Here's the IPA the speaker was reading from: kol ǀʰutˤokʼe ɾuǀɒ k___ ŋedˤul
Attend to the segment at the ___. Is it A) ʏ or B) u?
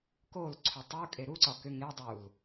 A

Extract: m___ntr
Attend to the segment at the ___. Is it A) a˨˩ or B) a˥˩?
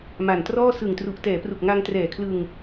A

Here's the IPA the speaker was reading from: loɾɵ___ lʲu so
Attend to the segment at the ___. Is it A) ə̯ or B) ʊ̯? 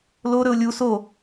B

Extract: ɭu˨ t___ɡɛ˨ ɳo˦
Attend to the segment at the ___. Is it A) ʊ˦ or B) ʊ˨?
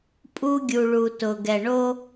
B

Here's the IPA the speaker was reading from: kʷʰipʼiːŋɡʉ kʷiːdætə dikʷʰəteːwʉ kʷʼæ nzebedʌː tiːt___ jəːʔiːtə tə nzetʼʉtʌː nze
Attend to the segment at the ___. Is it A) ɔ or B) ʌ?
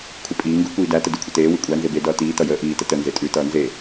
B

